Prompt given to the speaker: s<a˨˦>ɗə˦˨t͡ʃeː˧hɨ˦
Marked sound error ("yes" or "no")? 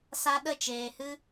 yes